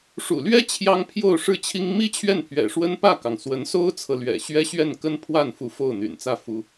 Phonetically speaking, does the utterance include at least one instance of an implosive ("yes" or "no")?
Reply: no